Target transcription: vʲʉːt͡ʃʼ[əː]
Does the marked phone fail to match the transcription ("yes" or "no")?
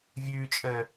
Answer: no